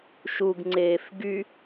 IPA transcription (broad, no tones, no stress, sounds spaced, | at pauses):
ʃ u ɡ ŋ͡ǀ eː f ɡ y